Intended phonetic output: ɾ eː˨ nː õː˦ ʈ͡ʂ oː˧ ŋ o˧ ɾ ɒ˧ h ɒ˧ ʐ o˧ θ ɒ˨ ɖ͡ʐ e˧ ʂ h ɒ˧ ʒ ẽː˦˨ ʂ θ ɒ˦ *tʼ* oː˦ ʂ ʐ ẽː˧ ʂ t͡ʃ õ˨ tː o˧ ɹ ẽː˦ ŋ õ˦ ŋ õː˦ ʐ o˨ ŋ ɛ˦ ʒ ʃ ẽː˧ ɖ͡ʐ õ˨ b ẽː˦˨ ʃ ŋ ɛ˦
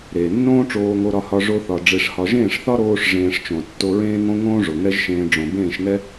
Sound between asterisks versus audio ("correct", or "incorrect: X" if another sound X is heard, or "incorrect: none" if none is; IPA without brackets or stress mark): incorrect: ɾ